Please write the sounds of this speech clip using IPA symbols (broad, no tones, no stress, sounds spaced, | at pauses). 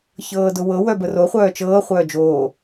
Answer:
ç ɤː d ʊ w ɤ w œ b ə r o χʷ œː t͡ʃ ɤː χʷ œː d͡ʒ oː